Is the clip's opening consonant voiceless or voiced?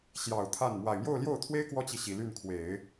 voiceless